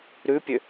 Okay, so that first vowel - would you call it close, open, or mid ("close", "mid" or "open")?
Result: close